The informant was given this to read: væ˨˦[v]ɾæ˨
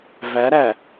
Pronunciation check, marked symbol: incorrect: none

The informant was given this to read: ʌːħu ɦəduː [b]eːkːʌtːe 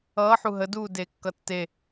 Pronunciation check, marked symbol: incorrect: d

